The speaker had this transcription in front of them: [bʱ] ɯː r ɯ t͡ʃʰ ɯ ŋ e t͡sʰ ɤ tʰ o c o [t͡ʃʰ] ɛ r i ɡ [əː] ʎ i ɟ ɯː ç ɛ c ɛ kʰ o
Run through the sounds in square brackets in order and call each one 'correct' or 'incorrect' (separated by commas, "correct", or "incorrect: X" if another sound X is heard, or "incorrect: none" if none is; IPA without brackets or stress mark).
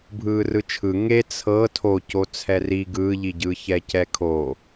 correct, incorrect: t͡sʰ, incorrect: ɯː